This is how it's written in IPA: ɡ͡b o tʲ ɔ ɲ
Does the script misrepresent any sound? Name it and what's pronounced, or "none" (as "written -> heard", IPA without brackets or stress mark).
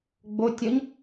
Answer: none